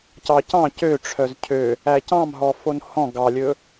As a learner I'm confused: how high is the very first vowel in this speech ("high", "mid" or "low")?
low